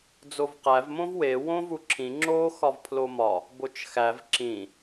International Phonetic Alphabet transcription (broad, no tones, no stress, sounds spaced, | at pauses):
d͡z o v q æ v m õ v w e w õ v u ǁʰ ĩ ŋ͡ǁ o x ɒ v pʰ l o m ɒ | b o t͡ʃ x æ v ǁ ĩ